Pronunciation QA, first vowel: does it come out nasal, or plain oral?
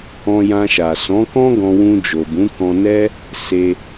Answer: nasal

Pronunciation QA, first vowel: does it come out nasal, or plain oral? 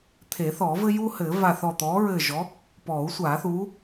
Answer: oral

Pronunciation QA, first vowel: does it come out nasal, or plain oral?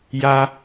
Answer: oral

